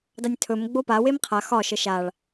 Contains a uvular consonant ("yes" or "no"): yes